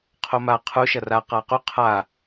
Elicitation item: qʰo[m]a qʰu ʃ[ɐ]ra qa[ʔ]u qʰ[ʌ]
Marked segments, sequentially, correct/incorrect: correct, correct, incorrect: q, incorrect: a

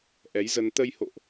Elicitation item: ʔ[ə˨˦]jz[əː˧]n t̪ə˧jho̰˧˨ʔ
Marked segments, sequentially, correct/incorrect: incorrect: ɛ˨˦, incorrect: ə˧

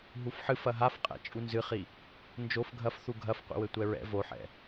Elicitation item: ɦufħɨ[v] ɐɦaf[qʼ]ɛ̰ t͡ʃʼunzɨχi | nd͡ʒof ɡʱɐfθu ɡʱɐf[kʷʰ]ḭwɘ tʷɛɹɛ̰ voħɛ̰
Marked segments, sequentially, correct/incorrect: incorrect: f, correct, incorrect: qʷ

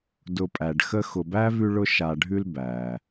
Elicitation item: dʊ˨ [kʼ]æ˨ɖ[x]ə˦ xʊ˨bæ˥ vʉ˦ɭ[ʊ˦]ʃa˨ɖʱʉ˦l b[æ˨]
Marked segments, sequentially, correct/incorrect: incorrect: pʼ, correct, correct, incorrect: æ˩

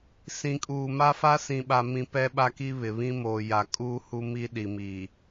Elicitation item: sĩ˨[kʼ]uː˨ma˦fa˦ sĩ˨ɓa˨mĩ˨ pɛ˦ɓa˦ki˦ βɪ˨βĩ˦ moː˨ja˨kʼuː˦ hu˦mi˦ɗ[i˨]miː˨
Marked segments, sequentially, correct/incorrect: correct, correct

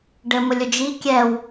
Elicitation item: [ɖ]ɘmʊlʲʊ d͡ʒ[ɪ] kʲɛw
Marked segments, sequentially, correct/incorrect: correct, incorrect: i

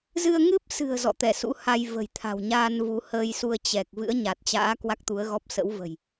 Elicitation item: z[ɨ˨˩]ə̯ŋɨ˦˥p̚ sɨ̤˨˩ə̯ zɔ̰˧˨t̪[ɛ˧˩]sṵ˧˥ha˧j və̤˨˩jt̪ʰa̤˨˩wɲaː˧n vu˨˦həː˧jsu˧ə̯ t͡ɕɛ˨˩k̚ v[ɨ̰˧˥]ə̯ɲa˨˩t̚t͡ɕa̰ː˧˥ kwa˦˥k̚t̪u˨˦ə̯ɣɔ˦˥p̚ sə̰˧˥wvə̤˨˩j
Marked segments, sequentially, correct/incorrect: incorrect: ɨ˧, correct, correct

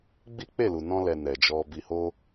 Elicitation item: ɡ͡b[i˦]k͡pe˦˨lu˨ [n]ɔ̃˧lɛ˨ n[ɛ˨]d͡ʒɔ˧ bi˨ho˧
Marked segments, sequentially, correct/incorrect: correct, correct, correct

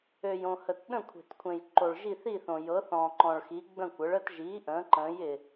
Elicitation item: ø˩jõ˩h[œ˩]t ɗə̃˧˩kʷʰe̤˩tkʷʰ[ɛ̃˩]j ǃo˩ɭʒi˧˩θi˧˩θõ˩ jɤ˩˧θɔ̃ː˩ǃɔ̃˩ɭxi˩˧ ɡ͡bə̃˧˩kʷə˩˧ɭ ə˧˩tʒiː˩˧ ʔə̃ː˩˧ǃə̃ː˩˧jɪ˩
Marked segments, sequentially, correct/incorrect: incorrect: ə˩, incorrect: ẽ˩

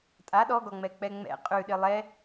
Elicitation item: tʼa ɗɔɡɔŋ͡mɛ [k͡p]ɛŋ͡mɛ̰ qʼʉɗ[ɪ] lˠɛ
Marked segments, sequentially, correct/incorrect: correct, correct

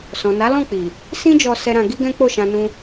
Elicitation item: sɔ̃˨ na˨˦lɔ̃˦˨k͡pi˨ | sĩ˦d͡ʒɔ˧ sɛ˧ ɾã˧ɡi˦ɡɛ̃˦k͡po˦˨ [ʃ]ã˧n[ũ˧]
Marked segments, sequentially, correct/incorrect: correct, correct

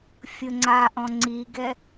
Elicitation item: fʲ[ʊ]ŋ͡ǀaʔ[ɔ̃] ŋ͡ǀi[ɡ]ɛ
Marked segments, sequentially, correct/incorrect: correct, correct, correct

